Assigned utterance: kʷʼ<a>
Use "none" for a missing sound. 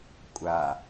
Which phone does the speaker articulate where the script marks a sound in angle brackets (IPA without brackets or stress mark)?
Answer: a